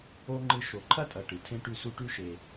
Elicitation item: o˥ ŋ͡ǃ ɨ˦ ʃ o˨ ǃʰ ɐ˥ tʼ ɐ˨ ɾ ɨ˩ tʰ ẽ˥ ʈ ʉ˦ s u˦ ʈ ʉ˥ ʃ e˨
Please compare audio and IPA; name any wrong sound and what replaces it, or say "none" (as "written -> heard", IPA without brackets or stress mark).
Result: ɾ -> ʈ